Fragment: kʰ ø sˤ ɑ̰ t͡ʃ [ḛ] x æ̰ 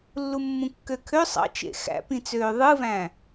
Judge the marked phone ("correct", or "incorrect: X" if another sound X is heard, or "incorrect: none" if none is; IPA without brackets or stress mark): correct